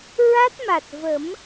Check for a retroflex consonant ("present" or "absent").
absent